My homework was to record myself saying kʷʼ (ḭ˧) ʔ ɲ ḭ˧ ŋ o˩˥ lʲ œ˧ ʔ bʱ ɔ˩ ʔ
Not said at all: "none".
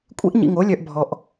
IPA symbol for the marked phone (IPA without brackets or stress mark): ḭ˥